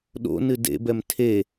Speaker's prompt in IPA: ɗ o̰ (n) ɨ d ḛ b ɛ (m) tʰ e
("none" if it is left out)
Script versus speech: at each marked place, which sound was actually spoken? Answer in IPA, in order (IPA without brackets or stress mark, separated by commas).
n, m